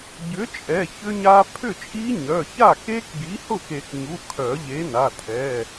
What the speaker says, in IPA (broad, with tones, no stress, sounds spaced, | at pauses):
ɟ ʏ˨˥ t͡ʃʼ ɛ˩˧˩ ç ʏ˦˥ ɲ a˦˥ pʰ ʏ˥˩ t͡ʃʼ i˦˥ ɲ œ˩˧˩ ç a˥˩ k e˦˥ k ɡ i˨˥ h ʊ˥˩ k e˨˩˦ k ɲ u˩˧˩ kʰ œ˨˩˦ ʎ e˨˥ n a˩˧˩ tʰ ɛ˩˧˩